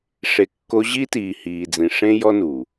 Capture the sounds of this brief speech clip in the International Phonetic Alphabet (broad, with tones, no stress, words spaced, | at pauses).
ʂe˨kːo˧ʑi˦ tiː˨hiː˨d͡zĩ˨ ʂẽ˦jɔ˦nu˨